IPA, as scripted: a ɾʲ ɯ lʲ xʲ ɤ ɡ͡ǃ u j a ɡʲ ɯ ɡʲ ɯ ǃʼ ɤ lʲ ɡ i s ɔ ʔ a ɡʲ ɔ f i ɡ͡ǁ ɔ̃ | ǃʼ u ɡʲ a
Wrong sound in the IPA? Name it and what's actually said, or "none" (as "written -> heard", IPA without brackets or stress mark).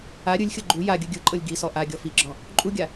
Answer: none